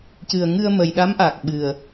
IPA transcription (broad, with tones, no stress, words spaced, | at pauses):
cɨ˨˩ə̯ŋɨ˧ə̯mə˨˩jɗa˧˥m ʔa˨˩k̚ɓɨ˨˩ə̯